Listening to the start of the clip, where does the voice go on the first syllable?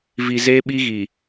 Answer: low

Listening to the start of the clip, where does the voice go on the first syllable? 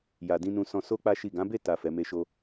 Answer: low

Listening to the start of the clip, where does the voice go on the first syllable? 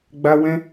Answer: high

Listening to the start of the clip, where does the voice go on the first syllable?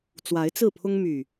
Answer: rising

